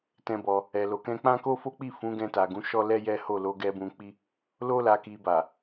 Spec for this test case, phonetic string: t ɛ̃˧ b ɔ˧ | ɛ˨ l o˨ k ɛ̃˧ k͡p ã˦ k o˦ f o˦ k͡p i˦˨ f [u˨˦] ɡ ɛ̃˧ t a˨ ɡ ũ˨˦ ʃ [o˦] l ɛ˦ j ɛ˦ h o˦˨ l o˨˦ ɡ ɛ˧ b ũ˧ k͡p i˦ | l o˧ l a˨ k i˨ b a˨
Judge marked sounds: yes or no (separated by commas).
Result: no, no